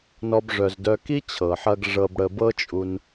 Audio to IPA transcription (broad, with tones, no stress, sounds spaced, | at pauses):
n ɔ˦ b ʐ œ˧ z d œ˦ k i˦ t͡ɕʰ ɤ˨ ħ ɐ˧ ɡ ʐ ɤ˧ b ɽ ə˧ b ɤ˦ t͡ʃʼ u˧ n